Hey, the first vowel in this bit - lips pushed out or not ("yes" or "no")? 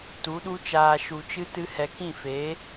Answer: yes